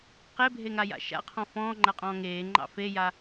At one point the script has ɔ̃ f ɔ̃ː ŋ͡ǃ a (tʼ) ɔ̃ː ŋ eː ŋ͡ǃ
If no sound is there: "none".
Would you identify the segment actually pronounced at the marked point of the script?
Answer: qʼ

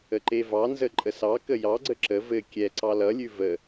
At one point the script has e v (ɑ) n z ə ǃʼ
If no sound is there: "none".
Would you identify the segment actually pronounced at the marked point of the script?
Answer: ɑ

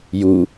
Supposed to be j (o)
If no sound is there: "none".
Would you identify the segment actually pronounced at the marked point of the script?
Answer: u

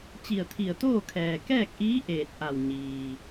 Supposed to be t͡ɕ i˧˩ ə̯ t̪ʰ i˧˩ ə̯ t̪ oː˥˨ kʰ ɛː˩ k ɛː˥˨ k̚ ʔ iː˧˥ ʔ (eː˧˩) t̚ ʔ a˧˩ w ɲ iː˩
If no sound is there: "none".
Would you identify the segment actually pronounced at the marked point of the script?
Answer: eː˧˩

